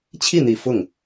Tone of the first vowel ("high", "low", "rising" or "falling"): falling